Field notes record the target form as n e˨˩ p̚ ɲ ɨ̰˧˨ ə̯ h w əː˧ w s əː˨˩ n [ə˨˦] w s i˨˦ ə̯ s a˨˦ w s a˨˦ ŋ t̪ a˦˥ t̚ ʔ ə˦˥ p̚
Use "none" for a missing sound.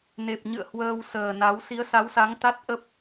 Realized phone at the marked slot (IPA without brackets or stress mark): a˨˦